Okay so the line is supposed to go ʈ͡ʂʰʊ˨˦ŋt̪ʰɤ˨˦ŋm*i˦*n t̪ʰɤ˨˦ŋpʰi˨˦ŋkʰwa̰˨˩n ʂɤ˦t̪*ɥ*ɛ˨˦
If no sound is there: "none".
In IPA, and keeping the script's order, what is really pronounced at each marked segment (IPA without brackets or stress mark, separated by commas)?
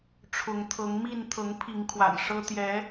i˥˨, j